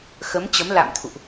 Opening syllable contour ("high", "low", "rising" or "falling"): rising